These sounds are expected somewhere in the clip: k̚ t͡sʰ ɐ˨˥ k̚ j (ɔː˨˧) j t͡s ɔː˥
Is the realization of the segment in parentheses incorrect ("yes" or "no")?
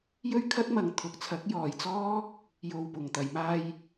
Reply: yes